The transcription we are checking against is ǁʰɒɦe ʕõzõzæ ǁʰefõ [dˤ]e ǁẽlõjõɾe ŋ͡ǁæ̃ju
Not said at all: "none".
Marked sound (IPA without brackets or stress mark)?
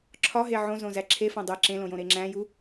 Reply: dˤ